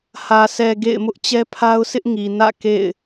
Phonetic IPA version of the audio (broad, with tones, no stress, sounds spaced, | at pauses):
h ä˨ s ɛ˨ ɡ ḛ˦˨ ɪ̯ m ʊ˦ ʔ t͡ɕ ɛ˦ pʰ a˦ ʊ̯ sʰ ɪ˦ ʔ ŋ i˨ n ä̰˦˨ k ḛ˦˨ ɪ̯